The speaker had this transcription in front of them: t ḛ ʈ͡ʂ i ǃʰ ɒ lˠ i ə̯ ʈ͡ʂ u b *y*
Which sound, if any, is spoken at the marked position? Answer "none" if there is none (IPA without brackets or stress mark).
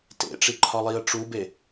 e